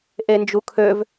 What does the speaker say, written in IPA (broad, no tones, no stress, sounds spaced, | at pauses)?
ʔ e n d͡ʒ u kʰ ø v